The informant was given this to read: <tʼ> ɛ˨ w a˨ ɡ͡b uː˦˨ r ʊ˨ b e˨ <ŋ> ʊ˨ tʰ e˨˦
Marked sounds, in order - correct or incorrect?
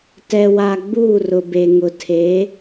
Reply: incorrect, correct

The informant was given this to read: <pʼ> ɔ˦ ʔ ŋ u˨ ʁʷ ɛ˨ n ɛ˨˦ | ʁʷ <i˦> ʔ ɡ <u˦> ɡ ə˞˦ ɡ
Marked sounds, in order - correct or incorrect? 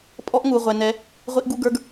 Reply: correct, correct, correct

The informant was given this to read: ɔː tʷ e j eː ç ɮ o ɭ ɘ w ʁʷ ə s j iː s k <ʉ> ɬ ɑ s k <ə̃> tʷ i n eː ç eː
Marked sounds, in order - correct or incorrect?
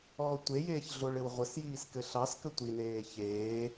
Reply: incorrect, incorrect

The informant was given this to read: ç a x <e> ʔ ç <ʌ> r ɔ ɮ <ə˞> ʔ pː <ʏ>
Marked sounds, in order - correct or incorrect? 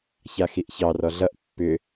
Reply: incorrect, incorrect, incorrect, correct

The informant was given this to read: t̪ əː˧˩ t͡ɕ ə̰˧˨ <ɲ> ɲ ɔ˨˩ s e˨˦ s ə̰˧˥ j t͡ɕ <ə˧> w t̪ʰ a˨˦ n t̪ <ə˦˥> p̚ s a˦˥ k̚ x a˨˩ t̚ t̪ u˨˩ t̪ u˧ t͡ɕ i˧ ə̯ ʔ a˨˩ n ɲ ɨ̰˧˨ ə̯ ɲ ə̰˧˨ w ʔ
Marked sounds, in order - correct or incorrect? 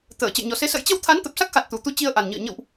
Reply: incorrect, correct, incorrect

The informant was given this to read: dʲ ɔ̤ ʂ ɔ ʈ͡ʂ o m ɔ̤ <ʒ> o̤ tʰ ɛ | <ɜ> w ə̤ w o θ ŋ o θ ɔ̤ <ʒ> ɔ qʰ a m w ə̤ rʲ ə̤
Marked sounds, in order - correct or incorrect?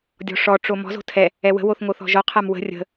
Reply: incorrect, incorrect, correct

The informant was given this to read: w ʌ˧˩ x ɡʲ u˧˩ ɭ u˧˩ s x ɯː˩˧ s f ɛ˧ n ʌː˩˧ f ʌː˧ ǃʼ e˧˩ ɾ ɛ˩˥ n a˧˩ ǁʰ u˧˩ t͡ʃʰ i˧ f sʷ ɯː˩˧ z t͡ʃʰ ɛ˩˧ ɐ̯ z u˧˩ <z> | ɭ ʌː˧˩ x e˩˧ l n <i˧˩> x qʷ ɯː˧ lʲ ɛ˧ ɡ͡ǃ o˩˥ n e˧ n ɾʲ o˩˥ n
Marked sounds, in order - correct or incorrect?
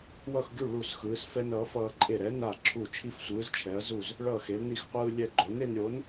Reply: correct, correct

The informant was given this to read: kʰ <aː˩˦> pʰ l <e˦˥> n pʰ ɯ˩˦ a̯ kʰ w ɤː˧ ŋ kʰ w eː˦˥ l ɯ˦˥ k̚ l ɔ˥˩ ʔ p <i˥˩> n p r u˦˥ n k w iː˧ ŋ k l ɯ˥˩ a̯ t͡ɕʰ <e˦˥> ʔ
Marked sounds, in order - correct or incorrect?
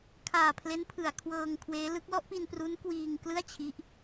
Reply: incorrect, correct, incorrect, incorrect

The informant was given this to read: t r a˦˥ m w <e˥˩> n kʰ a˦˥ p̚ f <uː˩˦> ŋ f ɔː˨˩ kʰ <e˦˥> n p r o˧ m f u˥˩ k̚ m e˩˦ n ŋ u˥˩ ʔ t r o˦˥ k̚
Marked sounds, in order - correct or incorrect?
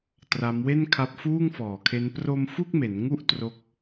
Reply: correct, incorrect, correct

